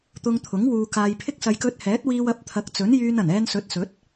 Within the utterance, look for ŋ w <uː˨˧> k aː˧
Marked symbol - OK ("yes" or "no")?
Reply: no